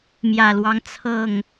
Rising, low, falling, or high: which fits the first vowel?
low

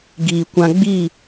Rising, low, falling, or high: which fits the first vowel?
low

